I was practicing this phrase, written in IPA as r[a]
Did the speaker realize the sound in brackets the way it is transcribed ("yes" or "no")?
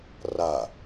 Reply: yes